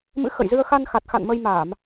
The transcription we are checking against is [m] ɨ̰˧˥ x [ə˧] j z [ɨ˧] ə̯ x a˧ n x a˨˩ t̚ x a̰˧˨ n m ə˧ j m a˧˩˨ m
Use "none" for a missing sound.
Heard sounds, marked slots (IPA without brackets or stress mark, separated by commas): m, ə̰˧˨, ɨ˧